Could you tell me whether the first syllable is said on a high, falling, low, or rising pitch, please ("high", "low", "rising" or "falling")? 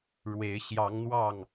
rising